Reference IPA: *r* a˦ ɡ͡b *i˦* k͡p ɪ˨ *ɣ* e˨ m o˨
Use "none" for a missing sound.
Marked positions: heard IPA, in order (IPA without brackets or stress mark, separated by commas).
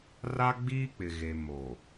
r, iː˦, ɣ